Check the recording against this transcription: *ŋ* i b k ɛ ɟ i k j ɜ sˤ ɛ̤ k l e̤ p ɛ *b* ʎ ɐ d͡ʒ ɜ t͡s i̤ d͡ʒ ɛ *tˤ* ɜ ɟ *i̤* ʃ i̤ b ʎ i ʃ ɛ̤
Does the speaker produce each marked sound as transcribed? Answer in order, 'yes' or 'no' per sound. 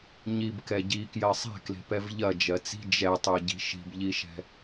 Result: no, no, yes, yes

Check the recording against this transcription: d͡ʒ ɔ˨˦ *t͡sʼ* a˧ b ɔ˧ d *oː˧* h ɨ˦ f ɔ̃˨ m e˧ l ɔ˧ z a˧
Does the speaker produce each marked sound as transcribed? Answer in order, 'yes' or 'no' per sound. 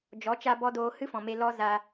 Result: no, yes

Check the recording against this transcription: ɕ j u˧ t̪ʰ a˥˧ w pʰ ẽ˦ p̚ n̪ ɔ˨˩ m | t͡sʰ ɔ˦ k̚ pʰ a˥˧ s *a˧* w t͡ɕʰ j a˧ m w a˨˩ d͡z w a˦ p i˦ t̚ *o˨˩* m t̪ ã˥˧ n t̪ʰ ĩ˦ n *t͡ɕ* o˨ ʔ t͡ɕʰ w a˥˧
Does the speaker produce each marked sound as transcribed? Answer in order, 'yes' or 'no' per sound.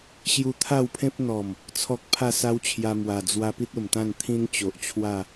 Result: no, yes, yes

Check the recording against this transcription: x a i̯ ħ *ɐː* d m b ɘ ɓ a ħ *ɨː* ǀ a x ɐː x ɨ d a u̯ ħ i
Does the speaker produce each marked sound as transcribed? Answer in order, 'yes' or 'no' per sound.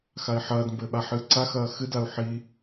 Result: yes, yes

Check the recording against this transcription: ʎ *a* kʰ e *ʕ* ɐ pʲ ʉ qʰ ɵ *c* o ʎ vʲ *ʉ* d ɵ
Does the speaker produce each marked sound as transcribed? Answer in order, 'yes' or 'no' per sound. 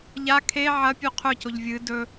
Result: yes, yes, yes, no

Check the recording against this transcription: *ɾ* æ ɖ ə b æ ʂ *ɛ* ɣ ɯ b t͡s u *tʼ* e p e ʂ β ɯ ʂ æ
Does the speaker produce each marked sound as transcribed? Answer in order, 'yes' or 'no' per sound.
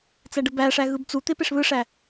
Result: no, no, no

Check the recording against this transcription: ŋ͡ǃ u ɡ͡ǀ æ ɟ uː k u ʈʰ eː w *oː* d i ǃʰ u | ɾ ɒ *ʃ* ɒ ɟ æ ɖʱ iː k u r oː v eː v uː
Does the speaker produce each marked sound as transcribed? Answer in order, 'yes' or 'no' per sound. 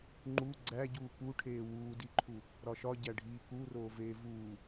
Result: no, yes

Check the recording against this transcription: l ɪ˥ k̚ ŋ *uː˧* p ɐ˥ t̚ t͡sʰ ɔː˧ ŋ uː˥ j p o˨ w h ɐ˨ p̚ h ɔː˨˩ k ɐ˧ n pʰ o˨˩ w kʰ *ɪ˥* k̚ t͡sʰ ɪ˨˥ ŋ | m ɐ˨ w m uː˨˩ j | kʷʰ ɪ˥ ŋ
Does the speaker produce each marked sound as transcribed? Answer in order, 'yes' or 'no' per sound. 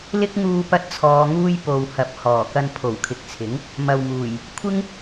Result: yes, no

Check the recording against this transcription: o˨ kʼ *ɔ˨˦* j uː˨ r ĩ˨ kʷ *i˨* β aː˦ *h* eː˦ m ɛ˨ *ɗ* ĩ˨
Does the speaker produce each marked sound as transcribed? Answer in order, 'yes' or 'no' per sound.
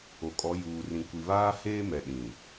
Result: yes, yes, yes, yes

